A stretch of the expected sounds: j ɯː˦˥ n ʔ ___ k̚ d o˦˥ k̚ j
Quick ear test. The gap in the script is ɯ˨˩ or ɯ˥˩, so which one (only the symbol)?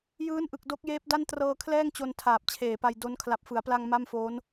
ɯ˨˩